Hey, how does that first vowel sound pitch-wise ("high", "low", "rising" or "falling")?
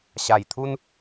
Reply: low